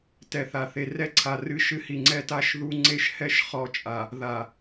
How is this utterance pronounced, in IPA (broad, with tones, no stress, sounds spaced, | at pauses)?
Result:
t ɛ˨ θ a˨ θ e˨ r ɛ˦ ǀʰ a˨ r ɨ˦ ʃ ɨ˦ h i˨ ŋ͡ǀ ɛ˦ t a˦ ʃ ð u˦ ŋ͡ǀ e˦ ʃ h ɛ˦ ʃ χ ɔ˦˨ t͡ʃʼ a˨ | ð a˨